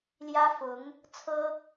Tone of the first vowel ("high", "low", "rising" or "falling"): high